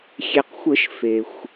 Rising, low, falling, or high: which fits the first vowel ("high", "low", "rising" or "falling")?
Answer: low